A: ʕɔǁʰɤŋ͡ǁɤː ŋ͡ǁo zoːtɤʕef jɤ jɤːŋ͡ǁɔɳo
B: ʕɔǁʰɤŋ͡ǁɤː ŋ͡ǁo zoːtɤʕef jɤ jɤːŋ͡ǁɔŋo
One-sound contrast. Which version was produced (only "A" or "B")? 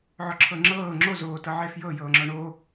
A